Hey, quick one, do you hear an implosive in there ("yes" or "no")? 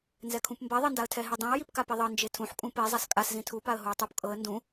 no